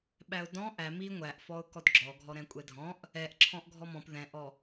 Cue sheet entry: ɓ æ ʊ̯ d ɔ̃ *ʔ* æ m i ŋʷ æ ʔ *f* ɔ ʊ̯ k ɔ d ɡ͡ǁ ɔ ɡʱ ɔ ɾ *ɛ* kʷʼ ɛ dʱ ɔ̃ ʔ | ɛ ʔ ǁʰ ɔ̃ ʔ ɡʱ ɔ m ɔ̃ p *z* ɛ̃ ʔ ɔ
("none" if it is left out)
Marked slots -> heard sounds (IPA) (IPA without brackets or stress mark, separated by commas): ʔ, f, ɛ̃, ð